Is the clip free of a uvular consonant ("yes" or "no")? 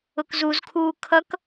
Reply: yes